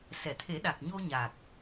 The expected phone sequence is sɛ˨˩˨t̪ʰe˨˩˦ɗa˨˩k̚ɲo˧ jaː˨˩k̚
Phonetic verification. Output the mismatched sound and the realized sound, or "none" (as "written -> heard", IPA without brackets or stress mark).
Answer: j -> ɲ